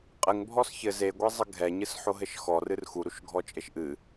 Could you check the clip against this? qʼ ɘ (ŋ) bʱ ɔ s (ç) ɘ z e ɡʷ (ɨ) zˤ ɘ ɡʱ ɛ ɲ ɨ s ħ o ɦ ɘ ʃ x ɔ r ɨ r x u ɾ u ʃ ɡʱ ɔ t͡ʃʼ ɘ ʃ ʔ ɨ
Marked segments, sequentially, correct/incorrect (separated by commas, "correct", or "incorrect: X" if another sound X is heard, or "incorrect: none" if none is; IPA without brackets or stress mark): correct, correct, incorrect: e